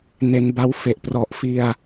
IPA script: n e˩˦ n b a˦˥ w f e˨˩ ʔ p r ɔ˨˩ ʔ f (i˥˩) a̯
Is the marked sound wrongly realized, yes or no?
yes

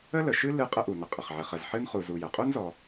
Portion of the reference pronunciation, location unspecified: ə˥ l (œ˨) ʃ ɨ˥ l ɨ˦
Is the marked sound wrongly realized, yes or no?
yes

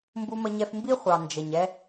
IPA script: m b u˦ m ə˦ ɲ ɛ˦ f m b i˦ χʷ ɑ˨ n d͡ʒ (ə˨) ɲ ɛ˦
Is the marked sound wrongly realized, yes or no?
no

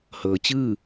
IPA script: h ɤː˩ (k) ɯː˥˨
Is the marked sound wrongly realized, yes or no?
yes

